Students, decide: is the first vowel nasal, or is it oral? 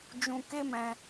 nasal